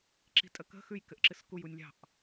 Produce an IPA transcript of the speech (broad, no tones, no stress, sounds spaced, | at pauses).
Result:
ǁ i̤ tʼ ə k ə̤ x ʉ j k ɘ ʔ ǁ ɨ s k u j u nʲ lʲ ɑ̤ ʔ